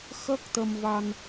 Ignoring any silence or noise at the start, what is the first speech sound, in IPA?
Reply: x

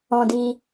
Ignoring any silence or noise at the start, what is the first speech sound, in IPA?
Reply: ɔ̃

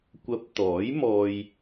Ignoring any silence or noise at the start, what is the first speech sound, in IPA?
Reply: kʷ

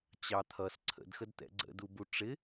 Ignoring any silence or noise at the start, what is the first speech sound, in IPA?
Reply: t͡ɕ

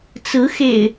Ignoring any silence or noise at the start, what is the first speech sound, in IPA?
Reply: t͡s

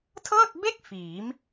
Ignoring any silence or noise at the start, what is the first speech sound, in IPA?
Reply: tʰ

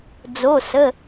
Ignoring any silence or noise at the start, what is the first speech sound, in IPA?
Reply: d͡z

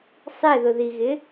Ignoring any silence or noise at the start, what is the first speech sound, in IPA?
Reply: sˤ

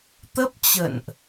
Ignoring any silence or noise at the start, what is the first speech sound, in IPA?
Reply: t̪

